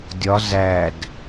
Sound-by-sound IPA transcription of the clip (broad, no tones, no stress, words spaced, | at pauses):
dʲɒ zæd